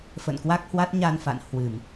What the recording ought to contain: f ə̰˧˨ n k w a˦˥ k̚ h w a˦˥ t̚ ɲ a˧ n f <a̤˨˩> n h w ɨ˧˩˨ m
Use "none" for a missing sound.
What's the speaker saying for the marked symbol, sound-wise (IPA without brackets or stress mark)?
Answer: a̰˧˨